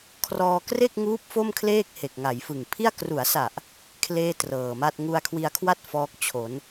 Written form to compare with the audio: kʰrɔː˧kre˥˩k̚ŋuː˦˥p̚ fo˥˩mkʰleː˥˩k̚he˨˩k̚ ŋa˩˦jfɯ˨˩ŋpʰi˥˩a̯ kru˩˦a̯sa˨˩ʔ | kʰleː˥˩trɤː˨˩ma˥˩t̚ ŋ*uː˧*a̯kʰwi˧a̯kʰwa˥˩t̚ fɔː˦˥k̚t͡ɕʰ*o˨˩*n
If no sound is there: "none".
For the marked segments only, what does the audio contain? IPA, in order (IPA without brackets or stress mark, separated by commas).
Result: u˧, o˩˦